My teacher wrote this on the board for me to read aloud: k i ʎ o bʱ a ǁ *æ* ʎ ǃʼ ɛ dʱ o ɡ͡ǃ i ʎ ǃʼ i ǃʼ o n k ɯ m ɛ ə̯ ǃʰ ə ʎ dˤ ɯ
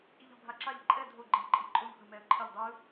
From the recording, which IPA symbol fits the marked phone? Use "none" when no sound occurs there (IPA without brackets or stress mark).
a